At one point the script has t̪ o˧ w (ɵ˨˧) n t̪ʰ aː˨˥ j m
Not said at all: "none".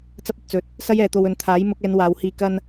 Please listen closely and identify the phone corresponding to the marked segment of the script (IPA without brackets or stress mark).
ɵ˨˧